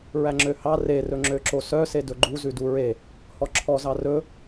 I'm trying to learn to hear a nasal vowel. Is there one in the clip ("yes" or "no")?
no